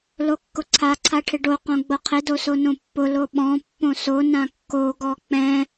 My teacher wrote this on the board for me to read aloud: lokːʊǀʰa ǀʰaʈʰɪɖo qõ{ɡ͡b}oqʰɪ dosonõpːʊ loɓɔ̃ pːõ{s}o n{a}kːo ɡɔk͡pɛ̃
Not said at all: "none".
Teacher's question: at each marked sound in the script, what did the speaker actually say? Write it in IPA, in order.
ɡ͡b, s, ã

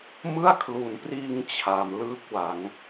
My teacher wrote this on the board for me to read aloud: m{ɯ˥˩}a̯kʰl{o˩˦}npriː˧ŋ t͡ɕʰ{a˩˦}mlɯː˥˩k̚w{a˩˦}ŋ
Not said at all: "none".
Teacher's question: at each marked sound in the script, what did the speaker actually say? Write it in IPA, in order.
ɯ˥˩, u˩˦, a˩˦, a˩˦

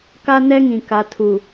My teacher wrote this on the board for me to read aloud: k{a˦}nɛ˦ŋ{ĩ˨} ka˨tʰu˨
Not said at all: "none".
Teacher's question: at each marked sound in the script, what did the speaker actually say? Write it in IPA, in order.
a˦, ĩ˨

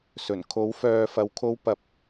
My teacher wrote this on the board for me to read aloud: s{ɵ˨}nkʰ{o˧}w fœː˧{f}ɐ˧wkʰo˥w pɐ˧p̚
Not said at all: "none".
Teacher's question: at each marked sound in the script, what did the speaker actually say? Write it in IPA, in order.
ɵ˨˩, o˨˥, f

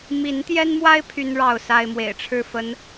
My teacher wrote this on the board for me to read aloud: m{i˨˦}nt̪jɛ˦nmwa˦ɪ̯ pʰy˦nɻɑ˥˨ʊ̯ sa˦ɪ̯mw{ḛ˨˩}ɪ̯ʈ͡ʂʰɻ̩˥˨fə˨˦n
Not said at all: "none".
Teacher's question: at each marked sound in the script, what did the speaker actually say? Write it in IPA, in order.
i˨˦, ḛ˨˩

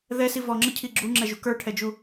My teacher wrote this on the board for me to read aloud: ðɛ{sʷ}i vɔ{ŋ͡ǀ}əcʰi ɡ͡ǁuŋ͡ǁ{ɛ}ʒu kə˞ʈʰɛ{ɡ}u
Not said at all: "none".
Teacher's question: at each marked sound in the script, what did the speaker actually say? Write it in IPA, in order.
s, ŋ͡ǁ, ɛ, d͡ʒ

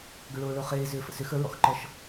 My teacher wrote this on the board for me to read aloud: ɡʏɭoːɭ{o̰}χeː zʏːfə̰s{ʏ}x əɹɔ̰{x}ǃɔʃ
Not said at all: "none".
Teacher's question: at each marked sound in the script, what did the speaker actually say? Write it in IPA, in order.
o, ʏ, x

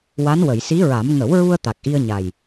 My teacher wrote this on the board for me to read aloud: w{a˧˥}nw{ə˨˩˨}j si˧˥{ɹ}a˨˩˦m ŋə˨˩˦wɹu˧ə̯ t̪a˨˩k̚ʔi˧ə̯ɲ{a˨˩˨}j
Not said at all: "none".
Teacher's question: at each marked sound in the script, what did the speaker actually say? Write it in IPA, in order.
a˧˥, ə˨˩˨, ɹ, a˨˩

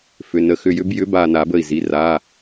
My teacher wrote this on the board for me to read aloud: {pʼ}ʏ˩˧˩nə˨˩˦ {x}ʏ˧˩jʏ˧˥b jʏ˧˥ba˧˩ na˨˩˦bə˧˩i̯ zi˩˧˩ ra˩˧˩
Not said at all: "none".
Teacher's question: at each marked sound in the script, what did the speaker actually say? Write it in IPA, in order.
f, x

